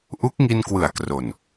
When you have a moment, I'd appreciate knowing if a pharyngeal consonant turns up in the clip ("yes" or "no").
no